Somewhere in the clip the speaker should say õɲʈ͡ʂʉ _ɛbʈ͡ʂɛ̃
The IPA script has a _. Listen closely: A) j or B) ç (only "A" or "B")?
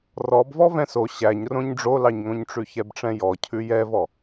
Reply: B